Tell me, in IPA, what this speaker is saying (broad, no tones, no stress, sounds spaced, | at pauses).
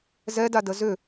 z ɛ d a d ə z ʏ